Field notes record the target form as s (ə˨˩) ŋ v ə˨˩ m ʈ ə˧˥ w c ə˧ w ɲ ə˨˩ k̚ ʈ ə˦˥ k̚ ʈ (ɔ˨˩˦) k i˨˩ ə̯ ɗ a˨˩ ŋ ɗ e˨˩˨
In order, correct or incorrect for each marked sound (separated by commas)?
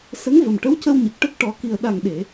incorrect, correct